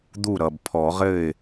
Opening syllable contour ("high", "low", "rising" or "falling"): falling